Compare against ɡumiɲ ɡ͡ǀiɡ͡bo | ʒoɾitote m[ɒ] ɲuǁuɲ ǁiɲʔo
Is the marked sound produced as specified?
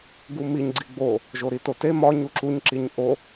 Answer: yes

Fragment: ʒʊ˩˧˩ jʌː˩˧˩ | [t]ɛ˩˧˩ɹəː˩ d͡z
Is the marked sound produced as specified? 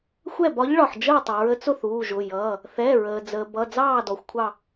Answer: no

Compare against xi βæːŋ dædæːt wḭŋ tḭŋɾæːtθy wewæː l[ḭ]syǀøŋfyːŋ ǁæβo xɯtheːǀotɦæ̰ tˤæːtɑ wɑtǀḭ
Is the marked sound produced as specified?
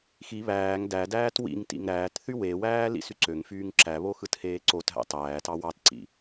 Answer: yes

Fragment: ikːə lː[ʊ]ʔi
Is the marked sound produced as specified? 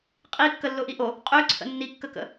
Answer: yes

